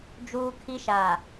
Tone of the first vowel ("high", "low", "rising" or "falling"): high